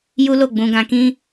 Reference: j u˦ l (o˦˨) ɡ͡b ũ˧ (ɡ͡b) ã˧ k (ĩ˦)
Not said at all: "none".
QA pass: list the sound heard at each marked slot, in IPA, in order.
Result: o˦˨, ɡ, ĩ˦

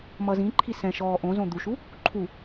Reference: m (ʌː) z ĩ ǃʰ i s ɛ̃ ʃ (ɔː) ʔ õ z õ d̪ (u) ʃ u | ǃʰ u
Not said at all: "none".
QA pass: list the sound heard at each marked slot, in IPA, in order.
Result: ʌ, ɔː, u

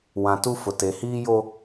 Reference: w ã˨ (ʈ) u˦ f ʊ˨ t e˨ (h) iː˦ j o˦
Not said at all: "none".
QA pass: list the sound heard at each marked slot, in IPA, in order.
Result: t, h

